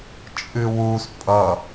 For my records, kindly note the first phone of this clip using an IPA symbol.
t͡ʃʼ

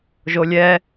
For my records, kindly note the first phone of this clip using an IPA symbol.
ʒ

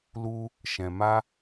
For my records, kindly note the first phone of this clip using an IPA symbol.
l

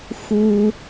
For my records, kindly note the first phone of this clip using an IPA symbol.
x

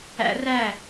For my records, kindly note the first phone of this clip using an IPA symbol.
æ̰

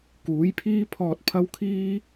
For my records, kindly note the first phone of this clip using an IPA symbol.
k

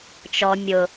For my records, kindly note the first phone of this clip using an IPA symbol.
t͡ʃ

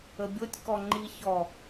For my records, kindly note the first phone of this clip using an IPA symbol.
ə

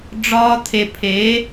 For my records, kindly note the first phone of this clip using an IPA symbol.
ɖ͡ʐ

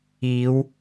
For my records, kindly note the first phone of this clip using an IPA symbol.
iː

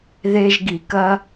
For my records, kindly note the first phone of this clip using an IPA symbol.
ð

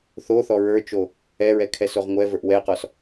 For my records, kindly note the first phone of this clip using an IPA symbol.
θ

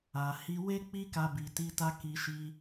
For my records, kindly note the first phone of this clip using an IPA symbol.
a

